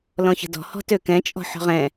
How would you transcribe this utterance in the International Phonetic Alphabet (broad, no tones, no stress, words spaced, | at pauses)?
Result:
lɔ̃çə̤dɔ̤ hɔ̤tøkɛ̃t͡ʃʼɔ̤ ħɔ̤ʁɛ̃